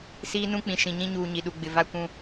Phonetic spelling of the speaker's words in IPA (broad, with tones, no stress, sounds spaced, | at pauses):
s iː˦ n ũ˦ k͡p ĩ˨ ʃ ĩ˨ ɲ ĩ˦ ɲ uː˨ ɲ i˨ ɗ u˨ ɡ͡b ɪ˨ v a˦ kʷ ũ˦